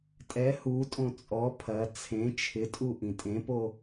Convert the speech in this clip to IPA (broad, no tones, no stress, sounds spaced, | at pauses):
tʼ ɛ h u tʼ õ t͡sʼ ɔ pʰ ɐ t͡sʰ ẽ t͡ʃʰ ɪ tʼ u ʔ ĩ tʼ ẽ p o